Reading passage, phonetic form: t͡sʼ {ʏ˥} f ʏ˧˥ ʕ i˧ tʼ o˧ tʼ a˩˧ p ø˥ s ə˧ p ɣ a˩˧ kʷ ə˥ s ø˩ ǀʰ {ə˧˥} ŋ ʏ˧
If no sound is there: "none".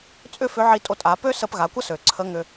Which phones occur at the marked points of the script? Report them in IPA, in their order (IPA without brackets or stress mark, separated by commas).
ʏ˥, ə˧˥